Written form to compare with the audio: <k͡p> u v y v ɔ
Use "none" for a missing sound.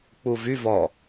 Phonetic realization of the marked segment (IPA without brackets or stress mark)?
k͡p